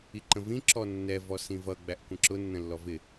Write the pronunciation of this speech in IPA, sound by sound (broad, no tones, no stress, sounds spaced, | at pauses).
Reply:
i ǃ ə̃ v ĩ ǁ ɔ nː ɛ v ɔ s ĩ v ʌ ɡ͡b æ ʔ kʷ ə̃ ǁ ʊ nː ə̃ lː ɔ v ɪ